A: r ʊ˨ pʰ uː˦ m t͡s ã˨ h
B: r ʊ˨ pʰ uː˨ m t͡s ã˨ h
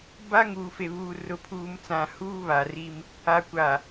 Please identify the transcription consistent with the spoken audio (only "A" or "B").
B